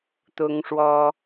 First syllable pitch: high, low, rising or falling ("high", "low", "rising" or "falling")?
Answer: high